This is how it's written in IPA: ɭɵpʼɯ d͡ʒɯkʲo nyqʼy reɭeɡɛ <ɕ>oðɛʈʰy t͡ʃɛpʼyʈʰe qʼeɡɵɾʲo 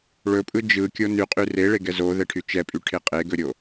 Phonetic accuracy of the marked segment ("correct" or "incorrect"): incorrect